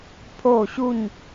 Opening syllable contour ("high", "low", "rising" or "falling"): falling